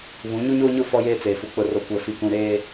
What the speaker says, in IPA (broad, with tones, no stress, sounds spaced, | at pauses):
β ũ˨˦ ɲ u˦ ɲ oː˦ ɲ ʊ˦˨ f ɔ˦ j eː˦ t͡s eː˨ f u˨ k͡p ʊ˨ r o˨ kʷ ɛ˨ f i˨ k ũ˨ ɾ eː˦